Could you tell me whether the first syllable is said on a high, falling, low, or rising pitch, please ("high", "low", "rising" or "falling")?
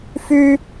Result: high